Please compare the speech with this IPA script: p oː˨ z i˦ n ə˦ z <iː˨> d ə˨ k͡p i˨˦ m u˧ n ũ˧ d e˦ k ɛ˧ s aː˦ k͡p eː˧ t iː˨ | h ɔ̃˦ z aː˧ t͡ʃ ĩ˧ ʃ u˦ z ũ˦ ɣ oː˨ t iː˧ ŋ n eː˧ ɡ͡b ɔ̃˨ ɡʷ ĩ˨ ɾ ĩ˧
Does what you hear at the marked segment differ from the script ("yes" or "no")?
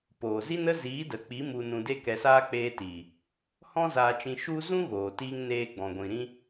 yes